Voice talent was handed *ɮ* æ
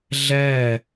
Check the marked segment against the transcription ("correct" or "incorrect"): correct